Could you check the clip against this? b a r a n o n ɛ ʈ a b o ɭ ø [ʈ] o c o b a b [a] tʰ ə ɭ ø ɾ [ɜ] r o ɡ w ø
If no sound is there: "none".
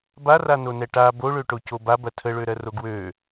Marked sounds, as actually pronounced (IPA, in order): ʈ, ɐ, ɜ

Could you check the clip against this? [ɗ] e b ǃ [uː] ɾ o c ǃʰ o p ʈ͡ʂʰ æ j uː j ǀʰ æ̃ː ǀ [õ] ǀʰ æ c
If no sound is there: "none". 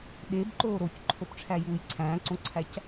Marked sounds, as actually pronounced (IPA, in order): ɗ, oː, õ

